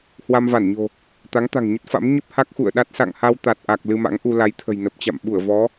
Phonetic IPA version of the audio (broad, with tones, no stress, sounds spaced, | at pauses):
h w a˧ m v a˧˩ n ɲ o̤˨˩ | t̪ a˨˦ ŋ t̪ a̤˨˩ ŋ ɲ ə˦˥ t̚ f a̰˧˥ m ɲ ə˦˥ p̚ h a˦˥ k̚ x ṵ˧˨ ə̯ ɗ a˦˥ t̚ s a̰˧˨ ŋ h a˧ w t̪ a˨˩ t̚ ʔ a˨˩ k̚ l ɨ˧ m a̰˧˥ ŋ ʔ u˧ l a˨˦ j t̪ʰ ə̤˨˩ j n ə˨˩ p̚ t͡ɕ a̰˧˨ m ɓ u˧˩ ə̯ v ɔ˨˦